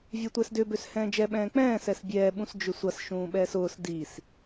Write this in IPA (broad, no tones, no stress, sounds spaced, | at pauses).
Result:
vʲ ɛ tʷ ɛ s d ʏ b ø s h ɛ̃ː d͡ʒ ɛ ɓ ɛ̃ː k͡p ɛ̃ː s ɛ s bʲ ɛː ɓ ũ s d͡ʒ ʏ sʷ ɐ s ʃ ũː ɓ ɛː s ʊː s d i s